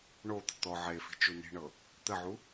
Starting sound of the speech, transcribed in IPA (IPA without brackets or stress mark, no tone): ɳ